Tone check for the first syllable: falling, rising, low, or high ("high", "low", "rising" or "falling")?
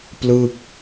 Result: falling